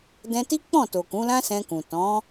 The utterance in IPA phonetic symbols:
d ɛ̃˧ t i˦ k͡p ɔ̃˦˨ t o˨ k ũ˨˦ l ã˦ s ɛ̃˧ k ũ˨ t ɔ̃˨˦

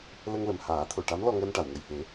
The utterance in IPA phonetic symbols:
l ə˧ ŋ l ə˨˩ m h aː˨˩˦ t̪ʰ o˨˩˨ ʈ a˧˥ m l ɔ˧ ŋ əː˧ n ʈ a˨˩˨ w ŋ ə˨˩ j h e˨˩˦

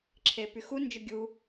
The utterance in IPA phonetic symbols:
ǁʰ e p y x u n d͡ʒ ʊ ɡʲ u

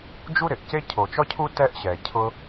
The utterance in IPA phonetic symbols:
d͡ʒ u˥ ɾ ɪ˩ ʔ c e˥ cʰ o˩ t͡ʃ ɔ˥ cʰ u˥ t ɛ˥ ʔ ɕ ɛ˩ cʰ ʊ˥

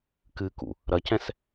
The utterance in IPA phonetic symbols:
k ɨ k ṵ | ɾ ɐ c ɛ̃ s

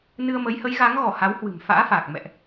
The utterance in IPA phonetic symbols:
n ɨ˧ ə̯ m ə˨˦ j h ə˨˦ j ɣ a˨˦ ŋ ɣ ɔ˧˩ h a˨˦ w h w ɨ̤˨˩ m f a̰ː˧˥ f aː˨˩ k̚ m ɛ̰˧˨ ʔ

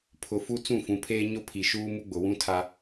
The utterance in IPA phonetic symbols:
pʰ ʊ˨ f u˦ t͡s ũ˦˨ f ũ˨ pʰ eː˦ ɲ ʊ˦ pʰ i˨ ʃ uː˦ m u˦ ɡ͡b ʊ˨ w ũ˦ tʰ a˦

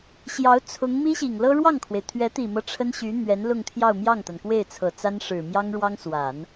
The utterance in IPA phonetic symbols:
ɕ j ɑ˧˥ ʊ̯ t͡sʰ ʊ˧˥ ŋ m i˥ ɕ i˨˩ ŋ l ɤ˥ ɻ w ɑ˥˩ ŋ kʰ w e˩ ɪ̯ t̪ʰ ɥ ɛ˧˥ t̪ i˨˩ m ɤ˦ ʈ͡ʂʰ ə˥ n ɕ y˧˥ n̪ ɥ ɛ˧˥ n l ʊ˥˧ ŋ t̪ʰ j ɑ˥˧ ʊ̯ m j ɑ˥˩ ŋ t̪ a˩ n k w e˥˩ ɪ̯ t͡sʰ ɤ˨˩ t͡s a˥ n ʂ ɻ̩˨˩ m j ɑ˥ ŋ ɻ w ɑ˥ ŋ s w a˨˩˦ n

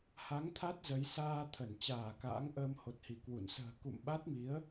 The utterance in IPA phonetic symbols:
h a˨˦ ŋ t̪ʰ a˦˥ t̚ z ə˨˦ j s aː˧ t̪ʰ ə˧˩ n t͡ɕ aː˧˩ k a̰ː˧˥ ŋ ʔ əː˧ m h o˨˩ t̚ h i˧˩ k w ṵ˧˨ n s ə̤ː˨˩ k ṵ˧˨ m ɓ a˦˥ t̚ m i˨˦ ə̯

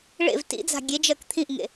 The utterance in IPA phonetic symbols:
ɭ ḛ v t ḭ d͡z a̤ ɡʲ e d͡ʒ ɜ k t̪ʰ ĩ ʔ ŋ ḛ

